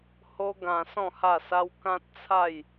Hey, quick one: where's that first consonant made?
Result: throat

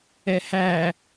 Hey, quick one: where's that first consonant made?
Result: throat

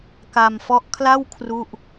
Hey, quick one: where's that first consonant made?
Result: velum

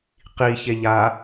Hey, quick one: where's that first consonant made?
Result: uvula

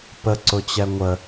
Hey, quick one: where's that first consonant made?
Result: lips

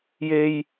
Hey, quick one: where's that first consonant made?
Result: palate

